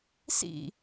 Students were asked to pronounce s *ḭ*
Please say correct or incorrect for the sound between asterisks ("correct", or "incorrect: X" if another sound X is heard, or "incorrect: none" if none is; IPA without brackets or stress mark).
correct